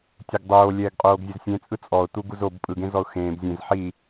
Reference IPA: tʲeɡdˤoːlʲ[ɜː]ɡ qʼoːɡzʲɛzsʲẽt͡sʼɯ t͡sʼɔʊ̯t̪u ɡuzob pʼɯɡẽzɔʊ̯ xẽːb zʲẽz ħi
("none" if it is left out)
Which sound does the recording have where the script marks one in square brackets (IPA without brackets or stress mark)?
ɛː